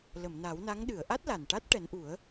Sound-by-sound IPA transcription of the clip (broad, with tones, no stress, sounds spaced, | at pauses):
l ə˨˩˨ m n a˨˩˦ w n a˧˥ ŋ ɗ ɨ˨˩˨ ə̯ ʔ a˦˥ t̚ l a˨˩ n ʈ a˦˥ t̚ ʈ ɛ˨˩˦ n ʔ u˨˩˦ ə̯